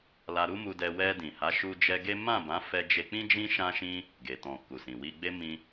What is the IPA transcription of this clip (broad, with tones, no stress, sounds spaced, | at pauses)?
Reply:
l a˧ ɾ u˦ m u˧ d ɛ˧ w ɛ˧ d ĩ˨ h a˨˦ ʃ u˧ d͡ʒ ɛ˧ ɡ e˦ m ã˦˨ b ã˨˦ f ɛ˧ d͡ʒ e˧ k͡p ĩ˦ d͡ʒ ĩ˦ ʃ ã˦ ʃ ĩ˦ | ɡ e˨ t ɔ̃˨ k u˨ s ĩ˨ w i˧ ɡ͡b e˦ m ĩ˦